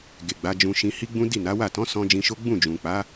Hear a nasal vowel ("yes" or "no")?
yes